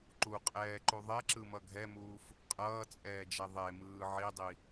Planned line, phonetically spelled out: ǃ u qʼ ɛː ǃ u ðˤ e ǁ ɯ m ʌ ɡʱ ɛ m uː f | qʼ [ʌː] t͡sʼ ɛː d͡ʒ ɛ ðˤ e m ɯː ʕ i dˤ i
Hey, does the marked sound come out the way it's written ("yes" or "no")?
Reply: yes